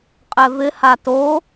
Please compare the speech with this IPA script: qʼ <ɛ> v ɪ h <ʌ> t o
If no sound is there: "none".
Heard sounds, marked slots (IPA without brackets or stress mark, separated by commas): ɛ, a